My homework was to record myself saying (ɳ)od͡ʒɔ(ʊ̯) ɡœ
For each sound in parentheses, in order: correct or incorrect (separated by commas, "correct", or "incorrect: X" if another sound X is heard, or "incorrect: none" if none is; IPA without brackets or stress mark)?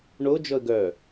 correct, incorrect: ə̯